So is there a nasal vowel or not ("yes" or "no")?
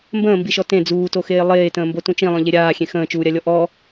yes